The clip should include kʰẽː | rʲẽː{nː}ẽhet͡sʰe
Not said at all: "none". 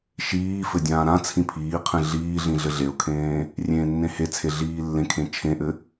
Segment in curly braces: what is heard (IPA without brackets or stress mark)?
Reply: nː